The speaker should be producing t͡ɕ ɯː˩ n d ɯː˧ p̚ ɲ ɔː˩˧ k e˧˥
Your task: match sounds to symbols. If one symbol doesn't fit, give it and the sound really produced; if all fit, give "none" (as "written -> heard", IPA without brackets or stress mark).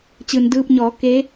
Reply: none